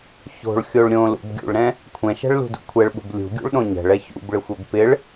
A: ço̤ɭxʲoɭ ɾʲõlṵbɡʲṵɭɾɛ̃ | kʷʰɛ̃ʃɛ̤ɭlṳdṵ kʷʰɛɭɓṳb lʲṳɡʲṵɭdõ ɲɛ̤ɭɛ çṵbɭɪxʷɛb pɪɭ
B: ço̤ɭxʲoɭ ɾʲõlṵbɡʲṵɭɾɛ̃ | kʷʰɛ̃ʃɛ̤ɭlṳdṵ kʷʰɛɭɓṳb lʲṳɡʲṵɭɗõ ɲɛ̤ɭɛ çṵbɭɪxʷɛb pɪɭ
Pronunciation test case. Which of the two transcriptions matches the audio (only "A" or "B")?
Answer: B